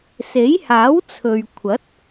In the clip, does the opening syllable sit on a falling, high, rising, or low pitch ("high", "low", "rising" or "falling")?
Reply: rising